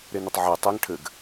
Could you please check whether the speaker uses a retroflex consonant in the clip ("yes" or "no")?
yes